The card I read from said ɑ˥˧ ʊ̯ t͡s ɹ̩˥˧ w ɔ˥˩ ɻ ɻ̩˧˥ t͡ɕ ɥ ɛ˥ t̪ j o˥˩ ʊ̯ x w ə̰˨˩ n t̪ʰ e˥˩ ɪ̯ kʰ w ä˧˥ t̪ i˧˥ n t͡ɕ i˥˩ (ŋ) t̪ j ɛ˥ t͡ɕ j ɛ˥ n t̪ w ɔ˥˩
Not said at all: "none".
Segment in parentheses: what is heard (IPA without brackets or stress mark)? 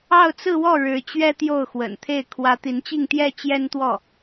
ŋ